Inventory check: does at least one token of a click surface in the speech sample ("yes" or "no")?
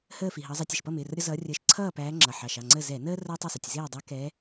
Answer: yes